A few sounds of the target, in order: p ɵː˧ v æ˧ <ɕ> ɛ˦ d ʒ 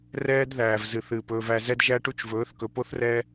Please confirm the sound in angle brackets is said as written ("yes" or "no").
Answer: no